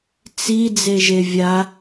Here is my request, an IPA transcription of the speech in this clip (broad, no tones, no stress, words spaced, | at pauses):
t͡si d͡zeʒevʲa